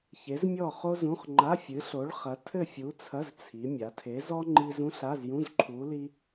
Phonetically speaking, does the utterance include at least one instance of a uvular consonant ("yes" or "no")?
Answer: yes